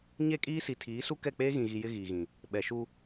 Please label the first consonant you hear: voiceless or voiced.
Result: voiced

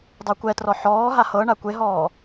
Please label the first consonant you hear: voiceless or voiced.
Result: voiced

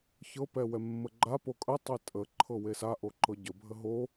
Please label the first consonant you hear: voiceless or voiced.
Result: voiceless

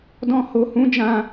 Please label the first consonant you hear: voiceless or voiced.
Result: voiced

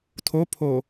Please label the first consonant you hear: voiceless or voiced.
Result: voiceless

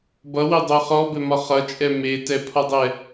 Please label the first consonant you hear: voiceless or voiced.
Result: voiced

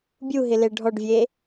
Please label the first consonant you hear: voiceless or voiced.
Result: voiced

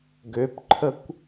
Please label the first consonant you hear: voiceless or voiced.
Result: voiced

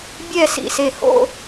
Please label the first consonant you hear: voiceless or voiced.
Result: voiced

